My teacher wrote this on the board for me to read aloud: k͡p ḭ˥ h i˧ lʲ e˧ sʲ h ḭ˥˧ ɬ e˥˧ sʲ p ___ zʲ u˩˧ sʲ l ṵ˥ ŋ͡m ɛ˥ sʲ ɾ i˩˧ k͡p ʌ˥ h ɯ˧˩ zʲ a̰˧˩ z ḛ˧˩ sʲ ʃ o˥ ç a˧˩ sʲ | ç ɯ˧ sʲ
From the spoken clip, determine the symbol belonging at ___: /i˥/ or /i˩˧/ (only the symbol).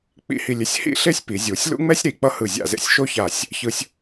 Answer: i˩˧